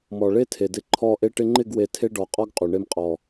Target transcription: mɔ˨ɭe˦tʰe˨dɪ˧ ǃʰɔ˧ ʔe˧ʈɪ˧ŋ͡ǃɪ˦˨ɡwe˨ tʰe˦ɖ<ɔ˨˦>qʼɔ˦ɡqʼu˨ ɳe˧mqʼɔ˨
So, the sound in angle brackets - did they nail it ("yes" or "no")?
yes